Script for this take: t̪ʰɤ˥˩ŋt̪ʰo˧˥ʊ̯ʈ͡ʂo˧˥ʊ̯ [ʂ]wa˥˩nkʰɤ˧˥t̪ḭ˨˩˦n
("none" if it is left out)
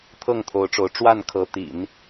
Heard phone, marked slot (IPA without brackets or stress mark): ʈ͡ʂ